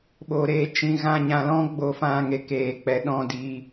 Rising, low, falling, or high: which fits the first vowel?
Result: low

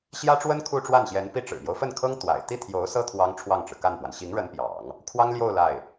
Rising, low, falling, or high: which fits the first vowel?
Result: high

